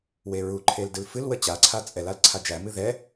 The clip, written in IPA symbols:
w e ɹ u ǃʰ e l d ɨ l f ɨ l w ə t͡ɕ a ǀʰ a t͡sʼ ɛ l a l ǀʰ a d͡ʒ æ m ɨ ð ɛ

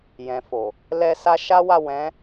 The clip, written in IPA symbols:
j ɛ̃˨ f o˨ | l ɛ˧ s a˧ ʃ a˦ w a˦˨ w ɛ̃˨˦

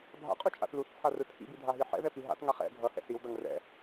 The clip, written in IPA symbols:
bʱ a̰ qʼ u t͡ʃʼ a̰ θ l u θ t͡sʰ a r ɯ tʰ ḭ b i dʱ a ɦ i ħ ɛ̰ ð ɛ p i ɦ a̰ t ŋ a χ ɛ̰ ɡʱ ʌ h ɛ̰ s i w d ʌ ŋ r ɛ̰

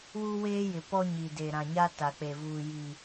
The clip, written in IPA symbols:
w u˦ w eː˦ j ɪ˨ p ɔ˦ ɲ i˨ d e˨ ɾ ã˨ ɲ a˦ t a˨ k͡p e˨ v uː˨ j i˨

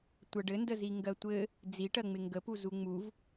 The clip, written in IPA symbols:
tʷ ɜ ɖ ɘ n d ə z i ŋ ɡ ɜ tʷ ɘ | d͡z i ʈ ɜ ŋ͡m ɪ ŋ ɡ ə p u z u ŋ͡m u v

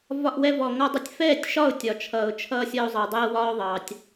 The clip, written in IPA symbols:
v ɒ˧ ʔ w ɛ˧ v ɔ˩ ŋ ɔ˧ dˤ ʌ˧ tʲ f ɛː˥˨ tʲ ʃ ɒ˥˨ ʊ̯ tʲ ɒ˩ t͡ʃʰ ʌː˩ ʊ̯ t͡ʃʰ ʌː˧ sʲ ʌ˧ ʊ̯ zˤ ʌː˩ dˤ ɛː˧ w ɒː˧ ʊ̯ ðˤ ɑ˩ tʲ

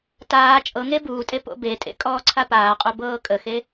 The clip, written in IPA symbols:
t aː t͡ʃʼ ɤ ŋ e b uː tʼ e p o̰ b e tʼ ḛ kʼ ɔː ǀʰ a p aː qʼ o b ɤː kʼ ə x e

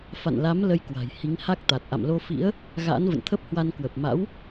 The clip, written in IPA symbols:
f a̰˧˨ n l a˨˦ m l ə˧ j k w a̤˨˩ j h i˨˦ ŋ h a˦˥ k̚ t̪ a˨˩ t̚ ʔ a̰˧˨ m l o˧ f ḭ˧˥ ə̯ | ɣ a̰ː˧˥ n v ə̰˧˨ n t̪ʰ ə˦˥ p̚ h w a˧ n k w ə˨˩ p̚ m a̰˧˥ w

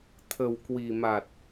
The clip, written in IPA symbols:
t̪ʰ ə˨˩ w k w i˨˩ m a˨˩ t̚

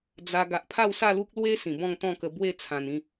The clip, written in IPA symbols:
d͡z a˧ ɡ a˨ ʔ pʰ a˥˧ w s a˥˧ l u˦ k̚ l w e˦ s ĩ˨˩ b ɔ̃˥˧ ŋ t̪ ɔ̃˥˧ k ə˧ b w e˥˧ t͡sʰ ã˨˩ n ĩ˥˧

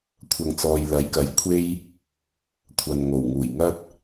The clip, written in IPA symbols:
kʷʰ ɐ˨ ŋ t͡s ɔː˨ j l ɐ˨˥ j k ɐ˨˥ j kʷʰ e˥ j | kʷʰ ɐ˨ n ŋ o˨˩ w ŋ uː˨˩ j ŋ ɐ˥ t̚

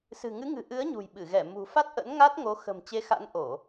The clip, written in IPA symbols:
s ɨ̤˨˩ ŋ ɨ˨˦ ŋ ɨ̤˨˩ ʔ ɨ˨˦ ə̯ ɲ ṳ˨˩ j ɓ ɨ˧˩ ɣ ɛ˧˩ m ṳ˨˩ f a˦˥ t̚ ʔ ə̰˧˥ n ŋ a˦˥ t̚ ŋ o˨˦ x ə̤˨˩ m t͡ɕ e˨˦ x a̰˧˥ n ʔ o˧˩˨

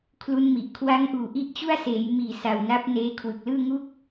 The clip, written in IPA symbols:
kʰ l u˦˥ n m i˨˩ ʔ kʰ w a˦˥ ŋ ʔ uː˨˩ ʔ i˦˥ ʔ t͡ɕ u˥˩ a̯ s eː˩˦ j m iː˨˩ s a˨˩ w n a˦˥ p̚ n eː˦˥ kʰ w ɯ˨˩ k̚ l ɯː˥˩ ŋ u˥˩ k̚

